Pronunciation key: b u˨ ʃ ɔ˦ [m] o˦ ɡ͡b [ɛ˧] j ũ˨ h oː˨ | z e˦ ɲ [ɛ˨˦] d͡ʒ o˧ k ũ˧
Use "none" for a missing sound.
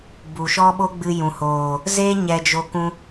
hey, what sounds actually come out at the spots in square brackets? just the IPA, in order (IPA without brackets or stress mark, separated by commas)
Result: ɓ, ɨ˧, ɛ˧